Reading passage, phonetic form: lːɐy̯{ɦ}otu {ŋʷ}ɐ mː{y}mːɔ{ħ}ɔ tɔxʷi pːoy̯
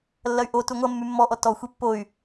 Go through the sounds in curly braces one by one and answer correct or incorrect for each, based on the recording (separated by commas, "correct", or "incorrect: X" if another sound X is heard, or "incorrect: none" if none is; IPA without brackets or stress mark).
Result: incorrect: ʔ, correct, correct, incorrect: ʔ